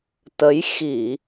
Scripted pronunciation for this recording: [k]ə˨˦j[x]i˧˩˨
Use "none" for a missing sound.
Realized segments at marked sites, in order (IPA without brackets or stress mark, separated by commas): t̪, x